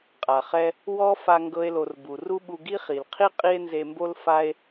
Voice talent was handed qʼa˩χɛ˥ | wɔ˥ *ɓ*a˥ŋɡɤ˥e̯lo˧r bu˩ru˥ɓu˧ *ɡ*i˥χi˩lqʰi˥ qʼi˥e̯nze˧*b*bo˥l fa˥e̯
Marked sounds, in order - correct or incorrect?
incorrect: f, correct, incorrect: m

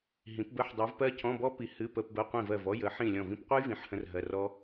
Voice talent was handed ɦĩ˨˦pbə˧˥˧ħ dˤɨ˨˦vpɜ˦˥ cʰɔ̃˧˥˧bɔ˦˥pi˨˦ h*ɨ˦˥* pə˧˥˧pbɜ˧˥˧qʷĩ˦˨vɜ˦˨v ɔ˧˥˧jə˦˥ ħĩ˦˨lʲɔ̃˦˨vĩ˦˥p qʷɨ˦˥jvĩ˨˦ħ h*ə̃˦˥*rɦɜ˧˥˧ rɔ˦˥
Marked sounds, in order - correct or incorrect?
incorrect: ɨ˧˥˧, correct

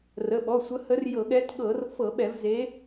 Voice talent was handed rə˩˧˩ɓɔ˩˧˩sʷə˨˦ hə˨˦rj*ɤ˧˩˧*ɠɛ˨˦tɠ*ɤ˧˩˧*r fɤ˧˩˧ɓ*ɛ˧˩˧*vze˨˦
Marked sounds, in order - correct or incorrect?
correct, correct, correct

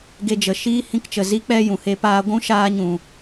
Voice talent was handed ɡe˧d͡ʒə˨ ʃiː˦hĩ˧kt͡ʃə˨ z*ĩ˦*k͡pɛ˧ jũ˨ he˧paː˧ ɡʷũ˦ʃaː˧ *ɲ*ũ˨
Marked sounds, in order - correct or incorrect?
incorrect: i˦, correct

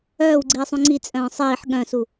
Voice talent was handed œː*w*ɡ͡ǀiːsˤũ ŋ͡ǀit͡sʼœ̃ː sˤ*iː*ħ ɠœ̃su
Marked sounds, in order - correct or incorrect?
correct, correct

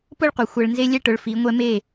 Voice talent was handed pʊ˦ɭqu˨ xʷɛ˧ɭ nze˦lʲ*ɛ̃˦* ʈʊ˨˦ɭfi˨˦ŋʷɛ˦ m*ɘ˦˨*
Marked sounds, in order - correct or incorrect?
incorrect: ɛ˦, incorrect: e˦˨

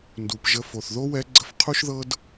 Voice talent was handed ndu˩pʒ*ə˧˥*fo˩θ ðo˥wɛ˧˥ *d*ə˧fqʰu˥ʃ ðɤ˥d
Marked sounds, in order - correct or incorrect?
incorrect: ə˧, incorrect: ɡ͡ǀ

